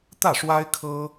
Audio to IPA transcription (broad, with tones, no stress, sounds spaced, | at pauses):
t̪ ä˥˩ ʂ w a˥ ɪ̯ kʰ ɤ˥